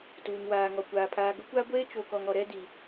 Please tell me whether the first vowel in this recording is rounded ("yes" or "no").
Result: yes